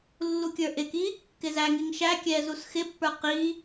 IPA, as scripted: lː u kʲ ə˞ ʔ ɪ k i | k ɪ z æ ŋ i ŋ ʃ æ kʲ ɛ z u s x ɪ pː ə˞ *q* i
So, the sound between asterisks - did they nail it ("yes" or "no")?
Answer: yes